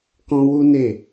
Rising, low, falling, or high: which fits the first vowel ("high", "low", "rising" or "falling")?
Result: high